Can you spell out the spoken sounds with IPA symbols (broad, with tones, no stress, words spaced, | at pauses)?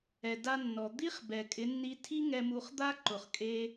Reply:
ɛ˨da˧nːɔ˨ d̪i˦χbɛ˨ kʼɪ˨˦nːi˧ tʰi˦ŋɛ˧mu˧χ d̪a˦ ǃʊ˨χkʼe˧